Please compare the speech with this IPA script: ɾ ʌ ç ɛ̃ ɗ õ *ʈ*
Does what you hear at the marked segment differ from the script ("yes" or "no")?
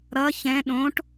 no